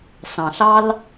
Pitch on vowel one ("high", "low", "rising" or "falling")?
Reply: low